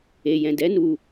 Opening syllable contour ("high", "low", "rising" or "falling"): low